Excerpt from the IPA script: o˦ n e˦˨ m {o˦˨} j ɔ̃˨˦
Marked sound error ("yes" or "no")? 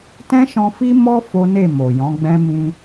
yes